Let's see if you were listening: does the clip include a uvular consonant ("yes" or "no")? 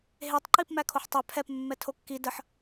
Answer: no